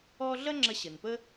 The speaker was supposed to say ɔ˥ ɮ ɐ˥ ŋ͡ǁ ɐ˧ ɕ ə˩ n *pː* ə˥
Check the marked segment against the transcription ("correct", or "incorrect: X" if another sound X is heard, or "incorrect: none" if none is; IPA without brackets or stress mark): incorrect: p